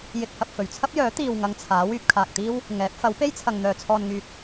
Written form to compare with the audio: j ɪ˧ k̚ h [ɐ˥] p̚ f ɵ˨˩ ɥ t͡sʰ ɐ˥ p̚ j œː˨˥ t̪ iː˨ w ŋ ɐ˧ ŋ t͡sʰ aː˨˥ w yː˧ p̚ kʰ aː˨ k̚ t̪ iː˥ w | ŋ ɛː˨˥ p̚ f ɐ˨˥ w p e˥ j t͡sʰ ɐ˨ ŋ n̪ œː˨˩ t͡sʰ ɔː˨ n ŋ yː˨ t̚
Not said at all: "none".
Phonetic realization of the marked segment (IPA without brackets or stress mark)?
ɐ˨